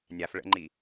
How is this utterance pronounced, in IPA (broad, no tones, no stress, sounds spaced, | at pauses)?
nʲ a f ɭ ə̰ ŋ͡ǃ i